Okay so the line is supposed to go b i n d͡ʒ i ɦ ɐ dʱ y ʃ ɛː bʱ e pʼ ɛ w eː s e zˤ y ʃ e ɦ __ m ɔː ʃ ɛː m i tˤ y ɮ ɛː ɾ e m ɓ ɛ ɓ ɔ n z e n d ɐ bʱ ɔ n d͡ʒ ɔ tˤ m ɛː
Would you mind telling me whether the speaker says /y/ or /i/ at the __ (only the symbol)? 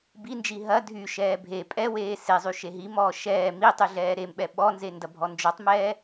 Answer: i